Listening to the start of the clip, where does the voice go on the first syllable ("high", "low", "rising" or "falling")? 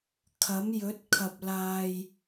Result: rising